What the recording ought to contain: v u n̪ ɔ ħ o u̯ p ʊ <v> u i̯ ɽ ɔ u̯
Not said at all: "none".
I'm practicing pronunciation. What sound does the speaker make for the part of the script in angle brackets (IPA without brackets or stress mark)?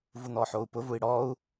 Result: v